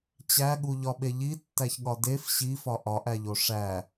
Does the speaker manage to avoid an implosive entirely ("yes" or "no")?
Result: no